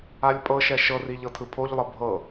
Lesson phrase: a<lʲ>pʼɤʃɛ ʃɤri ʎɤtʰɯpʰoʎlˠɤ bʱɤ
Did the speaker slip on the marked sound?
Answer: no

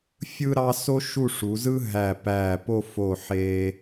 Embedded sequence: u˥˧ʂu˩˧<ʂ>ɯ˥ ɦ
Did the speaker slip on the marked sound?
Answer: yes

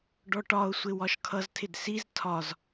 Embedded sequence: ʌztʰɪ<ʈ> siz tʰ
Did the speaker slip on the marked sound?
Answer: yes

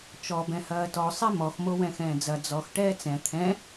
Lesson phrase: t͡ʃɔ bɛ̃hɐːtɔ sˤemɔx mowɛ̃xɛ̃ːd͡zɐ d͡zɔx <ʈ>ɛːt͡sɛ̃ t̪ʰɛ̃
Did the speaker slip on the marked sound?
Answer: no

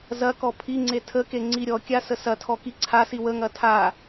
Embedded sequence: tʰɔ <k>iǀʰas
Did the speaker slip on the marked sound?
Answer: no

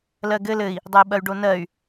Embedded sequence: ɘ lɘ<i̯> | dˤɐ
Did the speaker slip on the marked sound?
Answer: no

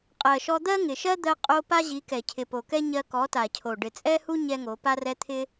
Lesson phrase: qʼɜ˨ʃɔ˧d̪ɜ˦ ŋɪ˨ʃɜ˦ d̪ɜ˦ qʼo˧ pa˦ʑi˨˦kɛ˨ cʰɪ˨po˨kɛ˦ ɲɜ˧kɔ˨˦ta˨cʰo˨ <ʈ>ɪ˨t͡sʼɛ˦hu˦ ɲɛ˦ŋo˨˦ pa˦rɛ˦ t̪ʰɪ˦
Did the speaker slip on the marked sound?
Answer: yes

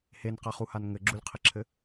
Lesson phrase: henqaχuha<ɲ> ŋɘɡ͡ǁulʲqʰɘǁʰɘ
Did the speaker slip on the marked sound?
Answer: yes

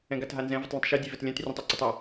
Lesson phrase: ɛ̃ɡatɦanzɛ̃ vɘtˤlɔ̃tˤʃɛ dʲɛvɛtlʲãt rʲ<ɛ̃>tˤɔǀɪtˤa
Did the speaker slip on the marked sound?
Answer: no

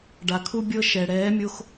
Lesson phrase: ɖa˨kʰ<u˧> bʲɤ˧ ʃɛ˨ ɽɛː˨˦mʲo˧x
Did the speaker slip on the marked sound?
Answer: yes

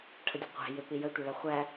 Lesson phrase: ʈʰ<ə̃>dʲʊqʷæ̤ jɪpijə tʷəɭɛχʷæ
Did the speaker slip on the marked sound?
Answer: yes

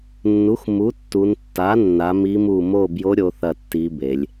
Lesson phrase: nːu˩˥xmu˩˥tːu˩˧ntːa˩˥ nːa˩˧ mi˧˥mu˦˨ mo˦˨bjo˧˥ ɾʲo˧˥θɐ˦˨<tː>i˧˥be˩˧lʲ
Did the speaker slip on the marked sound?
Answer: no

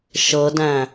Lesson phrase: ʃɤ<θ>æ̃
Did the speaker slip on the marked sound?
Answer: yes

